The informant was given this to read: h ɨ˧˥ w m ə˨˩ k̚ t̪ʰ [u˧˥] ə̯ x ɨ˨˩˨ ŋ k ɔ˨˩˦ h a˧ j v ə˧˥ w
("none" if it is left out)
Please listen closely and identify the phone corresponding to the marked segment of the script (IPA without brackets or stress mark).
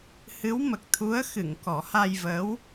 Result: u˧˥